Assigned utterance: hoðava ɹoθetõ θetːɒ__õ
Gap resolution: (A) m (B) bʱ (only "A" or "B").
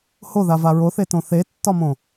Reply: A